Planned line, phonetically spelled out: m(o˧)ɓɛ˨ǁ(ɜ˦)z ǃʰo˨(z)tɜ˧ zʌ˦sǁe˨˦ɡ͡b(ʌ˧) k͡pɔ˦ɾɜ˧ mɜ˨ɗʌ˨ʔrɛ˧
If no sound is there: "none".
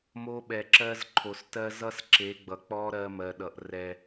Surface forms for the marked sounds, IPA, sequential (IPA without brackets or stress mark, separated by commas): o˧, ɜ˧, s, ʌ˨